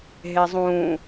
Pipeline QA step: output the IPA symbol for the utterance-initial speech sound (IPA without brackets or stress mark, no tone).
ɦ